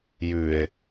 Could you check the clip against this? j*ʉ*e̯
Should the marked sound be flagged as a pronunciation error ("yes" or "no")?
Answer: no